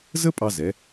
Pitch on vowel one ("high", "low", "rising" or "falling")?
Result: high